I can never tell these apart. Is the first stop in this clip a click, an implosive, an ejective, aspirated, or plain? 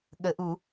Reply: implosive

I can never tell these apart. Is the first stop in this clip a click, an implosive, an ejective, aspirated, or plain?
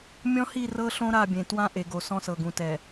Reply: plain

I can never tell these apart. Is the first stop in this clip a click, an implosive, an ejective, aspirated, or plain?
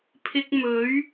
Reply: aspirated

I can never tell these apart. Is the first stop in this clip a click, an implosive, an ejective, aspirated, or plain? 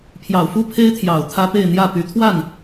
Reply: aspirated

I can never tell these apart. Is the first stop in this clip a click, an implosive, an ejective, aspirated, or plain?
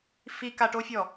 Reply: plain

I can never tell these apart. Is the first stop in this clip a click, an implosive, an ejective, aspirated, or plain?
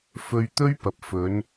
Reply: plain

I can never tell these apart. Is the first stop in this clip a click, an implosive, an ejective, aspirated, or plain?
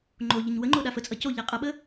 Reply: click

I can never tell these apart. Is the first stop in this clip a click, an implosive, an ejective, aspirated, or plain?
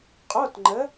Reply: ejective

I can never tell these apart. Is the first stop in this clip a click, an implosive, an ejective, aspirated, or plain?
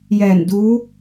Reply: plain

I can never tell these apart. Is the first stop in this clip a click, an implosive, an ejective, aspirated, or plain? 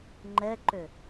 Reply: click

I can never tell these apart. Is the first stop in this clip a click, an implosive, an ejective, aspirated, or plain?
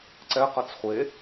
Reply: click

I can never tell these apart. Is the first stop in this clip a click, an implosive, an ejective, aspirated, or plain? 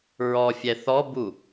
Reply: plain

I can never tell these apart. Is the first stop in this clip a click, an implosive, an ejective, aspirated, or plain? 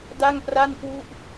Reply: plain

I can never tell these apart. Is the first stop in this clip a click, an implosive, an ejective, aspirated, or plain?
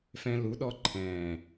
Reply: implosive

